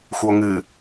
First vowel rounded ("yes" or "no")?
yes